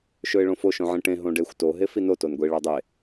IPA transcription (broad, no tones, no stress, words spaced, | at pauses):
ʃɵɪ̯ɭõfo ʃõʕĩʈẽ ɦõɖexʷ to ɦefino tonɡʷi ɭadˤe